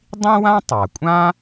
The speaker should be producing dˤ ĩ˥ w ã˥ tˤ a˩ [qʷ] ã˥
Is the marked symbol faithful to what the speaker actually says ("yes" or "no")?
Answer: no